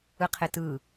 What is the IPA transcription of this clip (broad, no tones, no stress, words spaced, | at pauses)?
ɯqʰɪtɯ